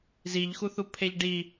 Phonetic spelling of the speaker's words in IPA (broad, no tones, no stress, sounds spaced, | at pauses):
z i ʎ x u θ u pʰ e ʎ ɖ i